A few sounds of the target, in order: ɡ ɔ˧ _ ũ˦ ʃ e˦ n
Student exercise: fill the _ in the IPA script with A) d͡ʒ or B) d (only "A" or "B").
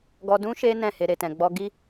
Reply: B